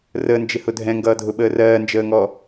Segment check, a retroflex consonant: absent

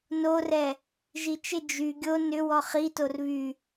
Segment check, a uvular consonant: present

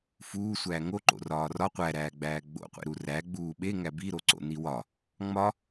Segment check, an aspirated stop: absent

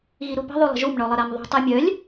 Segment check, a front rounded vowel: present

